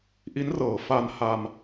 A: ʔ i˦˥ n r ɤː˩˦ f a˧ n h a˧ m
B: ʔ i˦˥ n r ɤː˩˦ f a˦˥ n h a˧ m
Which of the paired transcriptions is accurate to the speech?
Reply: A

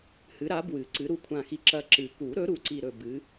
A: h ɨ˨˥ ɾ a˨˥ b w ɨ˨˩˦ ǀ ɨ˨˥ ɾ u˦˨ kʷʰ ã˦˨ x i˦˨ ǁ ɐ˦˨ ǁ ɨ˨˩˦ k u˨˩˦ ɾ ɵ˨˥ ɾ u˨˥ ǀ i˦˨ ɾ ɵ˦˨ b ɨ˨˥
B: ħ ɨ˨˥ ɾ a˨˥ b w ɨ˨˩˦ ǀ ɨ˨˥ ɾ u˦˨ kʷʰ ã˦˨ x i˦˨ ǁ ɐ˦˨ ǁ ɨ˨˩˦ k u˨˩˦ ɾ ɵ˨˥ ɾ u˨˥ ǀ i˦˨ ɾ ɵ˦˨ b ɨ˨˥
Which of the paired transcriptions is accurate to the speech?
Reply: A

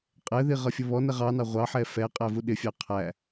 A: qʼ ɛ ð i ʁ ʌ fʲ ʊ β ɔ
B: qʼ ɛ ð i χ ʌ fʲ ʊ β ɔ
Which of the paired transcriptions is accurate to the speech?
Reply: A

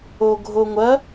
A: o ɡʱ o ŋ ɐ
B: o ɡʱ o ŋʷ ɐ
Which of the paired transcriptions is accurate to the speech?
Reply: B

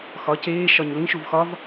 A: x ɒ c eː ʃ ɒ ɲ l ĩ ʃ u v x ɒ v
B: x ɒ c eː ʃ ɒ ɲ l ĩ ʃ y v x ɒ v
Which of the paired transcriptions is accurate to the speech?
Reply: A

